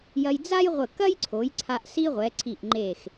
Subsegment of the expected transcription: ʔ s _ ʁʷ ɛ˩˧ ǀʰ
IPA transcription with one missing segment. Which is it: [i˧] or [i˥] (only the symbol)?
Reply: i˥